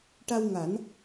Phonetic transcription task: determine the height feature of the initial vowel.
low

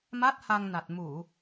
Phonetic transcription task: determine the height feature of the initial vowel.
low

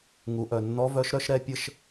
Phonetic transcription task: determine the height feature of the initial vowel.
high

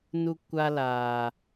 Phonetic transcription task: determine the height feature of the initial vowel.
high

